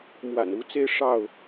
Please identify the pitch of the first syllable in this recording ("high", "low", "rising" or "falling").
low